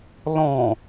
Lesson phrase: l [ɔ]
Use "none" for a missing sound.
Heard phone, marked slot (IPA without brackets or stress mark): ɔ̃